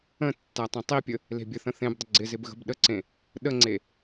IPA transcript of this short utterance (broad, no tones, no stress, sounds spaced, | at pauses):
ə̃ tː æ tˤ ẽ tˤ i pʲ ə | l e̤ bʲ ə θ ə̃ θ ẽ b dˤ ə ɡ͡ǀ ɪ z ɪ b ɣ ə̤ b ɗ ə ǀ ẽ | ɗ ə ŋ͡ǀ e